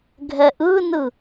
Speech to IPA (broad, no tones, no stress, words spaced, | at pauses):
ɡʱɛʔɯnɯ